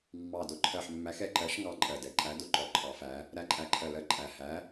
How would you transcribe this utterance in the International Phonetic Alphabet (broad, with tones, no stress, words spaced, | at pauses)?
mːɑ˨˩dʊ˨˩ǃʰɜ˨˩ħ mːæ˨˦xɛ˨˩ǃɜ˨˦ʃŋɑ˨˦ ǃʼɜ˨˩dɛ˨˦ ǃʼæ˨˦dʊ˨˩ǃɔ˨˦ ǃʰɑ˨˦fæ˨˦ | ɾæ˨˦ǃʼæ˨˩ǃʰɜ˨˩lɜ˨˦ ǃʼæ˨˩ hæ˨˦